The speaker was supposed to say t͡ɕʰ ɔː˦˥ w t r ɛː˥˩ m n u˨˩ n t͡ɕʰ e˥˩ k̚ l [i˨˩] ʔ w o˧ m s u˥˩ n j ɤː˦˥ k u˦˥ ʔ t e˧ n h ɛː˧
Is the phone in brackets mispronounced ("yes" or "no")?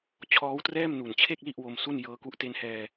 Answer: yes